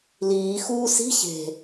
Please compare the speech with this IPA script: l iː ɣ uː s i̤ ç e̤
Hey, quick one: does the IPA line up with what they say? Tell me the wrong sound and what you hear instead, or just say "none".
ɣ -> x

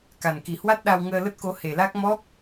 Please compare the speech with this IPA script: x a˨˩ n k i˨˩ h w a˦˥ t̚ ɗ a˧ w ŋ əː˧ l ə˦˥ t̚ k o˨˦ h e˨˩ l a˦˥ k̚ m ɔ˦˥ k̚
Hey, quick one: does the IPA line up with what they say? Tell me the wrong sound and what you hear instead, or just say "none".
x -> k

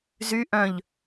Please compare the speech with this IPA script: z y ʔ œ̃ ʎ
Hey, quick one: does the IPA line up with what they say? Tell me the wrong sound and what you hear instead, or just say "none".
none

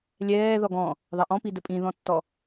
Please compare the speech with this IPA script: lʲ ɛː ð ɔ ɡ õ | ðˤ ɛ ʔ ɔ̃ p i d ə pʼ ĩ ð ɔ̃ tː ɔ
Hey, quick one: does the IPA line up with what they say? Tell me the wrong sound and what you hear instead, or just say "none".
õ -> ɔ̃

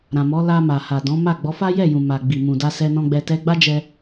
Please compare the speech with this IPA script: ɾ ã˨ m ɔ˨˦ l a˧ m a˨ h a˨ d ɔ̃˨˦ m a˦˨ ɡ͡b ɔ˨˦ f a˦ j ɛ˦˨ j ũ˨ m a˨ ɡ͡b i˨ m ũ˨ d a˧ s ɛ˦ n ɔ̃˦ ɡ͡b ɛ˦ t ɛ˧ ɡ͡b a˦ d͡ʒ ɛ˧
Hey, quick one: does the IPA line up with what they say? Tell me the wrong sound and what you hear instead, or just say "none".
none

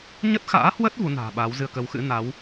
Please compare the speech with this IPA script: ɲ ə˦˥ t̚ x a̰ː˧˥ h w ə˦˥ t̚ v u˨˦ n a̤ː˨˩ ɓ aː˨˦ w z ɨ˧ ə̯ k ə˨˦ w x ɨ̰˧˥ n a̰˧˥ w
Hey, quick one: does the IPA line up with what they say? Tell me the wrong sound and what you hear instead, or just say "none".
a̰˧˥ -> a˨˦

